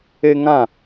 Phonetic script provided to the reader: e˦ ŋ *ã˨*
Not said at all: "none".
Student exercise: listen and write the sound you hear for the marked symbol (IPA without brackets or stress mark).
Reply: ã˦˨